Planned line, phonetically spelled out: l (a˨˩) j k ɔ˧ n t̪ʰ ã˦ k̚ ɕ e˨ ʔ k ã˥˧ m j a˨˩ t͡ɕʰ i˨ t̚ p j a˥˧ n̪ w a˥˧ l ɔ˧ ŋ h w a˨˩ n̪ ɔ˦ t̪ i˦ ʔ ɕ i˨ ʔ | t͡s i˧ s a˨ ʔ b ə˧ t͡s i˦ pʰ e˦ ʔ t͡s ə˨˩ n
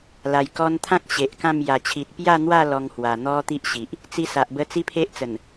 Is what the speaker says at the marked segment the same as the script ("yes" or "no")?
yes